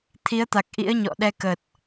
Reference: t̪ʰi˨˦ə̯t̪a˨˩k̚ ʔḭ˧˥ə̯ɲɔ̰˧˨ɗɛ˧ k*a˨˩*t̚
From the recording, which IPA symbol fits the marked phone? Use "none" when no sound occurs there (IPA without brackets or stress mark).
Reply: ə˨˩